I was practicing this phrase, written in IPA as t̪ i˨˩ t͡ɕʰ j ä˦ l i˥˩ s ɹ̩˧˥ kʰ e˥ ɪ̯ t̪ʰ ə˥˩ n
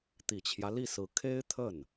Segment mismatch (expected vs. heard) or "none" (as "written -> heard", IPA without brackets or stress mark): none